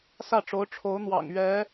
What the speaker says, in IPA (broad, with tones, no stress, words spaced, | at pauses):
sä˥˩ʈ͡ʂo˧˥ʊ̯ ʈ͡ʂʰo˧˥ʊ̯n̪wɑ̰˨˩ŋ ɥɛ˧˥